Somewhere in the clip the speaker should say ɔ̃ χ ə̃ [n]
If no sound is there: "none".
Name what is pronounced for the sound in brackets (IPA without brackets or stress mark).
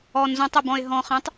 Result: tˤ